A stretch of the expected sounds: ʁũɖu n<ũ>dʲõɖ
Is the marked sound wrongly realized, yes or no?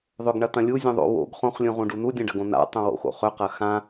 yes